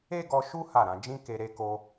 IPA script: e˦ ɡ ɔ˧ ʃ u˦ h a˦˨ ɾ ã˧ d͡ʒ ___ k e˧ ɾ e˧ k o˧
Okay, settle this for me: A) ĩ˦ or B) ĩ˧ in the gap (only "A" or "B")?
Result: A